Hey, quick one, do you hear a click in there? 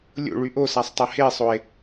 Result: no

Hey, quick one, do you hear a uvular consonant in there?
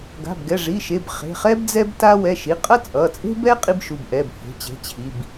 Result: yes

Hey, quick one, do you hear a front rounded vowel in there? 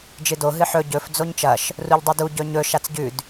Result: no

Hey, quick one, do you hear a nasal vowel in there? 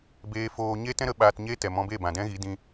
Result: yes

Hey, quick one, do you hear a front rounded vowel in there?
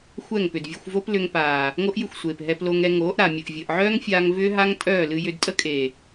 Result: yes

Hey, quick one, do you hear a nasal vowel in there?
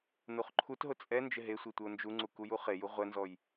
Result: no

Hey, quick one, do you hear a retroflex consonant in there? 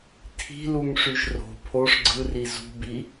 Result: yes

